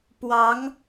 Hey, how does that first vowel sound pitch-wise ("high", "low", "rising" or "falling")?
rising